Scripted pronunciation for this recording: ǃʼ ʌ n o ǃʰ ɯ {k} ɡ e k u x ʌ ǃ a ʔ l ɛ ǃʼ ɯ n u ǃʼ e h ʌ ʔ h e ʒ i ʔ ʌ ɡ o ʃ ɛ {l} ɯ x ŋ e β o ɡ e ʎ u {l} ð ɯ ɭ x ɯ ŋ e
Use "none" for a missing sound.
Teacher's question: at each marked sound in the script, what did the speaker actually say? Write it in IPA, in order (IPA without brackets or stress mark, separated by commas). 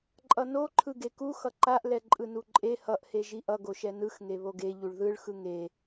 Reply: none, n, ɭ